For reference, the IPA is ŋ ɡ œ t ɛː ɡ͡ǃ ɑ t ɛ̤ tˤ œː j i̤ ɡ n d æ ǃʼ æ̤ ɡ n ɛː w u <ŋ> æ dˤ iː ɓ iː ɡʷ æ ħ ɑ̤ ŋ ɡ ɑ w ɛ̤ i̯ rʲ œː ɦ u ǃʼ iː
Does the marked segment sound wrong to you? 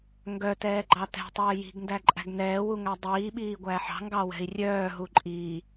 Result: no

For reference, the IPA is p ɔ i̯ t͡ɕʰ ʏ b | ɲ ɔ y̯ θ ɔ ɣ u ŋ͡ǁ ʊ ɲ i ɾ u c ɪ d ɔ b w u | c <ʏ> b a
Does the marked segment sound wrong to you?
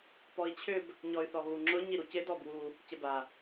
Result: yes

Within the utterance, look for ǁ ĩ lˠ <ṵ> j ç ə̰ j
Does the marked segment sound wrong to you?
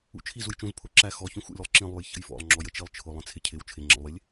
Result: yes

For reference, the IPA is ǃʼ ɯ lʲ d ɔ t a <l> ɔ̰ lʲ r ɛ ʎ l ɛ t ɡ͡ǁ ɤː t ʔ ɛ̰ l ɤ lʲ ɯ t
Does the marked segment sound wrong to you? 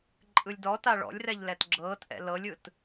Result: yes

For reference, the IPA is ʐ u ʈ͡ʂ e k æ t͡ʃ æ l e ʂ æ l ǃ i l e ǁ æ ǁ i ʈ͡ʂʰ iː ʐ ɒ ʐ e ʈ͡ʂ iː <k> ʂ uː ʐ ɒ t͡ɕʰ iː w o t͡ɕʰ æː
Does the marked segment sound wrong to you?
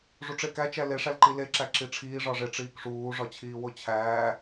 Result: no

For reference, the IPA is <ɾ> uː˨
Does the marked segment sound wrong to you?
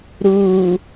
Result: no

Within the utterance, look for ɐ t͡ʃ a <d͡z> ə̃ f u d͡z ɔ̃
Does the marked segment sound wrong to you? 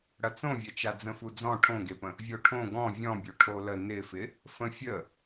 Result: no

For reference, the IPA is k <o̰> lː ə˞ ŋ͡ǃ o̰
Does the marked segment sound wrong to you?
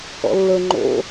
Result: yes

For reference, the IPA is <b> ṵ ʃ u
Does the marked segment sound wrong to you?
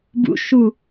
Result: no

